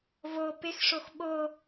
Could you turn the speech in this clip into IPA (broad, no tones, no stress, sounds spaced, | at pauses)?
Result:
v o p ɪ x ʂ o x ɓ o